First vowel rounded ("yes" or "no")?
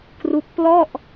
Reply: yes